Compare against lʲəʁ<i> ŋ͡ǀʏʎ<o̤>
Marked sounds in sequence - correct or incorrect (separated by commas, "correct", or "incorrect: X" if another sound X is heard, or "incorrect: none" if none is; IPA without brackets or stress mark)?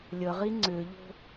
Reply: correct, correct